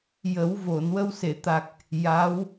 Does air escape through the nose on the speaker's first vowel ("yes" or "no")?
no